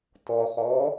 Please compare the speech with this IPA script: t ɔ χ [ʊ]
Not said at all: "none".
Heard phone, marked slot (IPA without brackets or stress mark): ɔ